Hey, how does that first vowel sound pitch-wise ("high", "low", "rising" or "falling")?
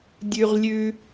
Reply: high